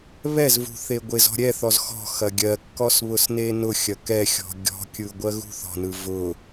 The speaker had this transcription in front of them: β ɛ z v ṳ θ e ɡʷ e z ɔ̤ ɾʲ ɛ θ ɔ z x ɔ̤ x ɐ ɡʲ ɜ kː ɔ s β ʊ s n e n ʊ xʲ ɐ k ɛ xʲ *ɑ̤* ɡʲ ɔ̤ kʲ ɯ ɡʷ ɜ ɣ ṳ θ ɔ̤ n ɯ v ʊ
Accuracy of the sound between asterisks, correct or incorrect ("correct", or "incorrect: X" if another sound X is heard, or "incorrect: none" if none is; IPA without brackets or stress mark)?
incorrect: ɔ̤